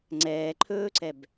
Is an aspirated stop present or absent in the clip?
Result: present